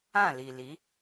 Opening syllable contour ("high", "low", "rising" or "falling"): falling